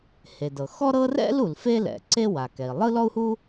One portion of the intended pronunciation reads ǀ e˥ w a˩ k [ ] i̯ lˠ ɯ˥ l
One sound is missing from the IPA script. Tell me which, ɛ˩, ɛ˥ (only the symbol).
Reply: ɛ˩